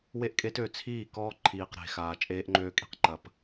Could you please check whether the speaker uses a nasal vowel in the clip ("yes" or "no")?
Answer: no